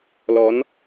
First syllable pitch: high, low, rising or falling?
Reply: rising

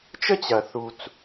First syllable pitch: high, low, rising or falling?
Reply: high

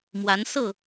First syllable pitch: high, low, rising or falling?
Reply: rising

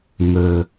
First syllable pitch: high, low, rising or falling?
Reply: low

